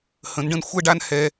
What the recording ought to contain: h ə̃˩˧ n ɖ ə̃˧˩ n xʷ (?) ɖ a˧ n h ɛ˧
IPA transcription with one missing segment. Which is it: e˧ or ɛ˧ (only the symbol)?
ɛ˧